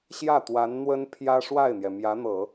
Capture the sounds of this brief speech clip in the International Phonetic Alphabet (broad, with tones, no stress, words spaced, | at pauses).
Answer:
ɕjä˥˩ t̪wa˧˥nn̪wə˥npʰjä˥ ʂwa˥˩ɪ̯n̪jɛ˩ mjä˧˥n̪ɤ˨˩˦